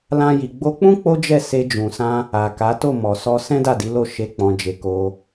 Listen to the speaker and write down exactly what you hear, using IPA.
lã˦ji˧ ɡ͡bo˧k͡pũ˦ k͡po˦d͡ʒɛ˦˨ se˧d͡ʒũ˨sã˧ | a˨ka˨˦to˦˨ mɔ˨sɔ˧ sɛ̃˦ da˦˨di˨˦lo˦˨ ʃe˨˦ k͡pɔ̃˧d͡ʒe˧ko˧

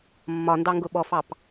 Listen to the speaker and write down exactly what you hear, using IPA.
mːɒndɑŋɡʊ ɓɔfɑp

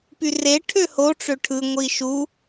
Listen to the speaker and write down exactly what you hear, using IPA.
pyre ʈʰøho ʈ͡ʂøʈʰɯ ŋʷiʃu

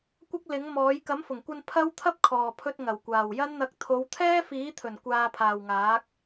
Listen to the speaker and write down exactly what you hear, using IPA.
kʷɐ˥k̚lɪ˨˥ŋmɔː˨˥j kɐ˨˥mfʊ˨˩ŋkʷɐ˧n pʰɐ˥w t̪ʰɐ˥p̚kʰɔː˨pʰɵ˧t̚ ŋɐ˨˩wkʷaː˨˩wjɐ˥nn̪ɐ˧k̚ t̪ʰo˨˧wt̪ʰɛː˥fiː˨˥t̪ʰɵ˨˩n kʷaː˧pʰaː˨wŋaː˨˥k̚

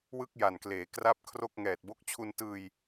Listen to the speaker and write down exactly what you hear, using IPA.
wɯ˥˩k̚ja˨˩nkleː˩˦kra˦˥p̚ kʰro˥˩k̚ŋɛː˨˩t̚ bo˦˥k̚t͡ɕʰu˧ntɯː˧j

